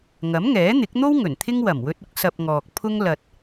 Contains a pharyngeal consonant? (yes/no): no